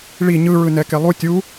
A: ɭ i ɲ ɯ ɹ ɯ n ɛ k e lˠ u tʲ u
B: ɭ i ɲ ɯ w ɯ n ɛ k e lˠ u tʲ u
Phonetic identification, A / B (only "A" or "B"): A